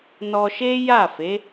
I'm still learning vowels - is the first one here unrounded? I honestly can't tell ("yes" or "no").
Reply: no